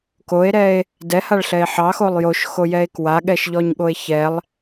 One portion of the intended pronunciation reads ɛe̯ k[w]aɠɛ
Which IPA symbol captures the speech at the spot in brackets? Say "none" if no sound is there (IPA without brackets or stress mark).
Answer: w